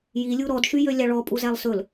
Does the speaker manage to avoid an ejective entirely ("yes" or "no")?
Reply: no